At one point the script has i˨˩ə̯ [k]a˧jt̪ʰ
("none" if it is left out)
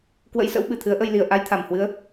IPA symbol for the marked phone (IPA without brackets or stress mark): ʔ